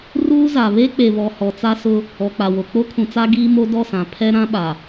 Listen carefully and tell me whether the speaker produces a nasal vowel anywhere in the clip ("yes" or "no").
yes